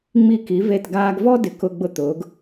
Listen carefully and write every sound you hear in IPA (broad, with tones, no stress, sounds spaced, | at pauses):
ŋ͡m i˧˩ k i˩˧ v e˧˩ t ɡ aː˧ ɡ v ɔ˥ d ɪ˧˩ k ʊ˧ ɡ͡b ʊ˧ t̪ ʊː˩˧ ɡ